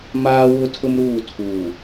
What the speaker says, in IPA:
maː˦wʊ˦tʰʊ˦mɾuː˦˨ tʰuː˨

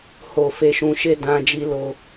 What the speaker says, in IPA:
ho˨ fe˧ʃũ˧ʃe˦ dã˧d͡ʒi˧ lo˦

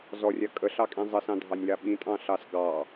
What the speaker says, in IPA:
zɔrʲa kʼəɬɑkʼĩ zˤəsɑ̃dʱɑnʲla ɓĩtʼɑ̃ɬɑs ɡɑ

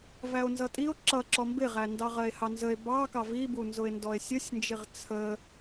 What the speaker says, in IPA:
væo̯nzʌtʼio̯ ǁʌ ǁɔmbɪʁændɑ ʁɜe̯hɑnzəe̯ bɑkɑ vibunzʊe̯ndɔe̯ sʲəsʲnd͡ʒɪʁ t͡sʰə

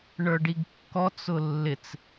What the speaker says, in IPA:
ɳə˞ɖiɡkːɔt͡s ʊlːɪt͡s

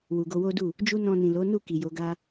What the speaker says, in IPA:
wu˨ɡo˧wo˦du˦˨ | d͡ʒu˦ nɔ̃˧nĩ˨lo˨˦nu˦˨ ki˨jo˨˦ɡa˦

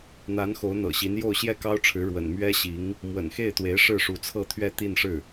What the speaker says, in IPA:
n̪a˧˥n xo˧˥ʊ̯n̪ɤ̰˨˩ɕi˧˥n jo˥˧ʊ̯ɕjɛ˥˩kɑ˥ʊ̯ʈ͡ʂʰɻ̩˧˥ ɻwə̰˨˩nmɥɛ˥ɕi˧˥ŋ | mwə̰˨˩nxe˥˩ɪ̯t̪we˧˥ɪ̯ ʂɻ̩˥˩ʂu˧˥t͡sʰɤ˥˧ t̪ʰɥɛ˥˧t̪i˥˧nʂɻ̩˥˩

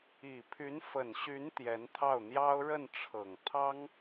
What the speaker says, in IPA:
i˨˩pʰy˧˥nfə˨˩nɕy˧˥n t̪jɛ˧˥nt̪ʰɑ˥˩ʊ̯n̪jɑ˥ʊ̯ ɻə˥˩nʈ͡ʂʰɤ˨˩ŋ t̪ʰɑ˥ŋ

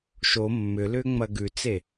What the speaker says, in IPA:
ʃo mːʏ lʏːŋ͡mɐɡʉt͡se

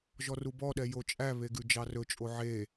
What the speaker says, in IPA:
ʒɔrubɔɗɛ jot͡ʃʼæβe ɡʉd͡ʒɑrɵt͡ʃʼo ʕe

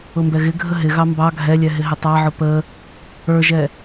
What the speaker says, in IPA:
ʊmbɛɣɪɡʱə ɦɪɣɑ mbɑ ɡʱɛlʲɛ ɦɪɦɪtˤɑʕʊ pə | ə˞ʒɛ

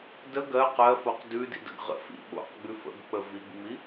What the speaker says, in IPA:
də ɡɜq ɜfoq dʉdḭdə̰ɡ ʁə̰fḭ ɓo̰qɡ͡bʉ fə̰ɡk͡pə viɡŋ͡mi

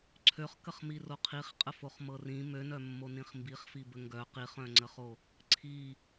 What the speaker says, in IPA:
ǀʰøχkəχmiro qʰiχqʼəfoχmɤ rĩ mønœmːonĩχ mbiχfibə ŋɡœ qiχœ̃ŋ͡ǀəχo | ǀʰi

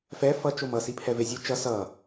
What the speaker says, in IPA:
fɛ fʌt͡ʃomʌ sipʰɛvezʲɯ t͡ʃʌ sʌ

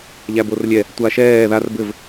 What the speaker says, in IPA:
ʎæborlʲɛ | tʷaʃɛː ðar bɘv

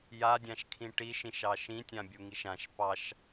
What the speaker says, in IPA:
jadʲãʃkʰĩ ʈiʃĩʃɑ ʃĩtʲãbʲuŋiʃ ãʃ pɑʃ

